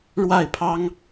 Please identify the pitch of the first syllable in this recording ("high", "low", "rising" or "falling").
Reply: falling